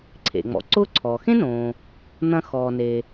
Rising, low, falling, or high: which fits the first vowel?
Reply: low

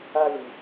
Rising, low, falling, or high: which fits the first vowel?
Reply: high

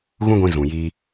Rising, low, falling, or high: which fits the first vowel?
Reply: high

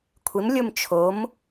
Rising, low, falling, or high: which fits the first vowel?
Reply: rising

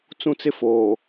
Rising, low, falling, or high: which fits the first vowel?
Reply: high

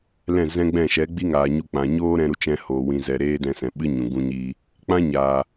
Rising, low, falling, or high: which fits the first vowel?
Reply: falling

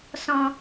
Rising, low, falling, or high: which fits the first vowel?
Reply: low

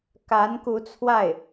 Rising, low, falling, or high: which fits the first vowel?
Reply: rising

